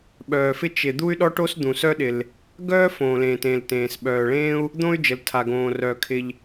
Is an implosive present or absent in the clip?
present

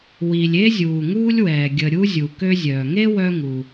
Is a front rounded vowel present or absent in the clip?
present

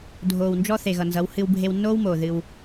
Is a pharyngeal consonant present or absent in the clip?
absent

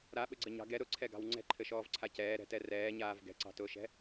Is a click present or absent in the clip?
present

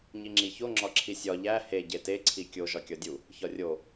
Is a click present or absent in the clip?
present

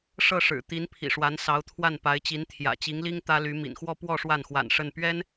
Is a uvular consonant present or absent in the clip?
absent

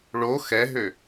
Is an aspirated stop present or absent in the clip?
absent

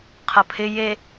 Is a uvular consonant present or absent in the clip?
present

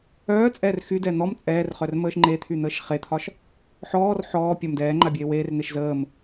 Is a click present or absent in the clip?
present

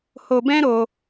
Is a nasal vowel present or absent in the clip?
present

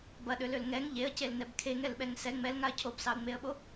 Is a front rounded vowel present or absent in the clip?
present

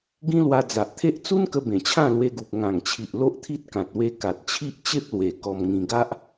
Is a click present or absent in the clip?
absent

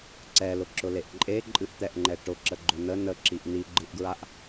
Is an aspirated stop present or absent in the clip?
absent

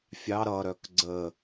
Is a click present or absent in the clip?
present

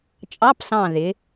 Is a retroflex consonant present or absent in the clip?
absent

